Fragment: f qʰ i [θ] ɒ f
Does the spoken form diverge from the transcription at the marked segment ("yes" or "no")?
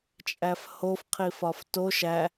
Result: yes